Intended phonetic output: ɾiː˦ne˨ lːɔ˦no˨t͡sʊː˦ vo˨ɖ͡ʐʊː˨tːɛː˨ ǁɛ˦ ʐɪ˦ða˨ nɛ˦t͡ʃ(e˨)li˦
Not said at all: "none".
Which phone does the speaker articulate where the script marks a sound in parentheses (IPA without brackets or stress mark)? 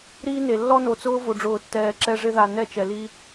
ɛ˨